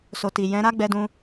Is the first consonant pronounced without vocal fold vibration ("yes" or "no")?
yes